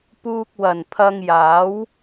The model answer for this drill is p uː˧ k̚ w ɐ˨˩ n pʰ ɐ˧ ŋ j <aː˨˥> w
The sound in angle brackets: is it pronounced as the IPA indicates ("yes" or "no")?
yes